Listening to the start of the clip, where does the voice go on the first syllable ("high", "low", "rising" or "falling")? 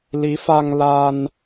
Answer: rising